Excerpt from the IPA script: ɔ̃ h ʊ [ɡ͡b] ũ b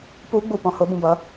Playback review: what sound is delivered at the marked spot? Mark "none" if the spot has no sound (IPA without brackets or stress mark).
b